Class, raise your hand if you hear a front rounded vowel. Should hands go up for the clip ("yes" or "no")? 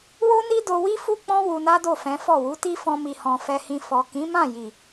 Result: no